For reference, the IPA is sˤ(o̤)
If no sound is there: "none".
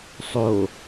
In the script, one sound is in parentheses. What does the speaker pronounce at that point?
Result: o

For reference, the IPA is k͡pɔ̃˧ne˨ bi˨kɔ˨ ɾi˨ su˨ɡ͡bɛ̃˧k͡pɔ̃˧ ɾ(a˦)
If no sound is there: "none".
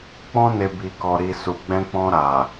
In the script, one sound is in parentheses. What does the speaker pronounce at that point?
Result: a˨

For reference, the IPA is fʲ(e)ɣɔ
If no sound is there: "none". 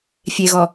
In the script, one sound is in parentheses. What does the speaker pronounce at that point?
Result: e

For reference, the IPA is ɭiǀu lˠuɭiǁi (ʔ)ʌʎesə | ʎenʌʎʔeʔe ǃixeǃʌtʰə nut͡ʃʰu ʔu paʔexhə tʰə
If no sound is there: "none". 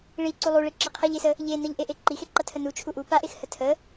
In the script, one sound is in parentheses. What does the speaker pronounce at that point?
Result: qʰ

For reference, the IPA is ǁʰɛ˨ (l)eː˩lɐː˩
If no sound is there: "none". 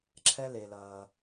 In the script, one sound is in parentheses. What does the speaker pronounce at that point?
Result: l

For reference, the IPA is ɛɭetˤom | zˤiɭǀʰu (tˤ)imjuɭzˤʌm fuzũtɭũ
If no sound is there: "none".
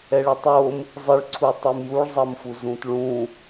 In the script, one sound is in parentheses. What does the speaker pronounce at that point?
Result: tˤ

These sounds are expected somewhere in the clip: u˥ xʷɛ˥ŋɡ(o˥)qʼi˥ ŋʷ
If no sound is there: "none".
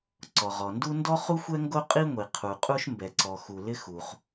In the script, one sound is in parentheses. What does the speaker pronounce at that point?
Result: o˥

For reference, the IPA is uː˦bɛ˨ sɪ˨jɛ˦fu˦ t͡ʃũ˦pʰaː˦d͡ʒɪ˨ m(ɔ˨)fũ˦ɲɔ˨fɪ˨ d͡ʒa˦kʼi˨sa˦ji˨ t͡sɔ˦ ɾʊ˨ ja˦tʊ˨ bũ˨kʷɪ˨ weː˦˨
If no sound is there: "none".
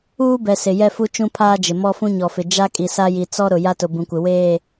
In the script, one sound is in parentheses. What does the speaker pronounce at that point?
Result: ɔ˦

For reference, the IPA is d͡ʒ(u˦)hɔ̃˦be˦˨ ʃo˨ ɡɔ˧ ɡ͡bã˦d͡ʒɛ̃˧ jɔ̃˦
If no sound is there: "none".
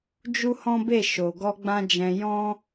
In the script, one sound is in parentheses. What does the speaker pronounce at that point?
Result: u˦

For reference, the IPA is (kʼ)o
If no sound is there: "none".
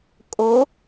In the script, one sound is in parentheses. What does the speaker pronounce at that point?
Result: kʼ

